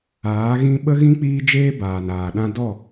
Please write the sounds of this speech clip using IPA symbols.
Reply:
aː˨˦ ɣ ĩ˦ ɓ ə˦ ɣ ĩ˦ k͡p iː˦ d͡ʒ eː˦ b aː˨ n aː˨ ɗ ã˦ d ɔ˦˨

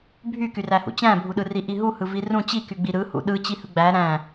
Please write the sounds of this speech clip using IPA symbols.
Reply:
bʱ y k y r æ h ṵ t͡ɕ æ̃ bʱ u ɗ ɯ r i ʔ i ɦ u h ɯ v i r ũ t͡ɕ i k y ɡ͡b i ɾ ɯ h ṵ ɗ ɯ t͡ɕ i h ɯ ɡ͡b æ ɾ æ̃

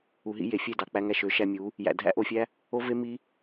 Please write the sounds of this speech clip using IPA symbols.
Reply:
u˨ ɦ ḭ˧ j e˨ fʲ e˦˨ d ɑ˨ k͡p æ˧ ŋ æ˧ ʃ ø˨˦ ʃ æ˧ mʲ u˨˦ | j æ̰˨ dʱ æ̰˦ ʔ o˧ fʲ æ˦ | o˦ v e˦ m i˦

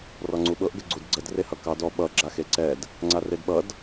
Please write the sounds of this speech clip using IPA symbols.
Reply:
r ɔ ŋ͡ǀ u ɓ ɤ ʔ ɡ ə ɡ͡ǀ u d ɡ͡ǀ ə d r e h ʌ k ɑ d ɔ ɓ ʌ ɡ͡ǁ a x e ǀ ɛ d | ŋ͡ǀ a r e d ɓ ʌ d

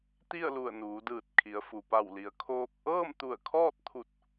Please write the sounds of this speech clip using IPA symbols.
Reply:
t̪ i˥˨ ə̯ l u˧˩ ə̯ n uː˩˧ d ɯː˧˩ t̚ kʰ i˩˧ ə̯ f u˩ p a˧˩ w l i˩ ə̯ kʰ oː˧ k̚ ʔ ɤː˥˨ m t̪ u˧˩ ə̯ kʰ ɔː˥˨ t̚ t̪ʰ u˧˩ t̚

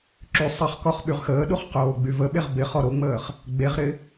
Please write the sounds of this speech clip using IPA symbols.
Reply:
ǁ y sˤ ɪ χ k ɔ χ ɓ y ʁ x əː ɗ u χ q oː ɡ͡b y v ə ɓ e ʁ b ɪ χ ɔ ɾ o ŋ͡m əː χ | ɡ͡b e ʁ ɾ ɪ

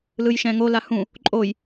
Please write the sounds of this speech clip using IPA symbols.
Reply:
l ɯ j ʃ ɛ̃ ŋ o l a h ũ | ǃʼ o j

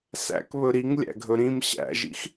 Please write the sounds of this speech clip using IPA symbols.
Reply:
s æ̰ k β ɵ ɾ i ŋ lʲ æ̰ ɡʱ ɵ ɾ ĩ m ɕ æ̰ ʒ ḭ x

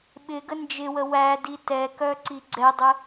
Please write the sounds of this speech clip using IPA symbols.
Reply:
ɓ ɪ ɡ ə n d͡ʒ ɪ w ə w æ d i t ɛ k œ ǀ i ɡ͡ǀ ɛ dˤ ə

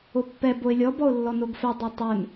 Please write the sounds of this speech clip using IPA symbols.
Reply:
o pː ɛ b o ɪ̯ lʲ ɔ b ɔ ʊ̯ lː ɔ n o ɡ f ɛ dˤ œ tˤ œ n

